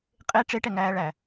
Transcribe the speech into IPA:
qʼ e ʈ͡ʂ e ʈ ɛ ŋ æː ɭ æ

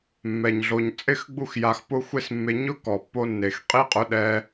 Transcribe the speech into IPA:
mː ɛ˨ ɲ ɮ o˨ ɲ t͡sʼ ɪ˦˨ x ɡ͡b u˧ x j a˨ x p ʊ˦ xʷ e˦ s mː e˧ ɲ ʊ˦ k ɔ˨ pː o˧ nː e˨ x qʼ i˦ qʼ ʊ˧ ɗ ɛ˧

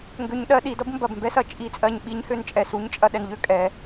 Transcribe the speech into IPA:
ŋ ɡ ø˦˥ ɲ ɗ ɜ˦˥ ɗ i˨˦ d ʌ˦˥ b m b ɐ˦˨ b m b ɛ˦˥ s ɐ˦˨ t͡ʃʼ i˦˨ t͡sʼ ɜ˦˨ ɲ ɓ i˦˥ ɲ h ø˦˨ n t͡ʃʼ ɛ˦˨ s u˦˥ ɲ t͡ʃʼ ɐ˦˨ ɗ ɛ˦˨ n ʎ ø˦˥ kʼ ɛ˨˦

